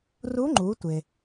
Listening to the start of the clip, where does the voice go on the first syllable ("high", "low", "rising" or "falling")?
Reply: rising